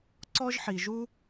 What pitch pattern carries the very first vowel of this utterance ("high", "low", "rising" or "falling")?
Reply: high